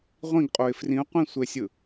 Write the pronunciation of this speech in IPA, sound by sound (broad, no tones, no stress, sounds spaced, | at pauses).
ʁʷ ĩ ɡ qʼ o ɪ̯ f r ĩ ʊ̯ qʷ ĩ sʷ e sʲ ɯ